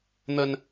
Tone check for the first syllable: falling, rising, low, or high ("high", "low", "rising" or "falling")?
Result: high